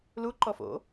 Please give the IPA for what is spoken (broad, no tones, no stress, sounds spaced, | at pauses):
l u ǃ ɔ f o̰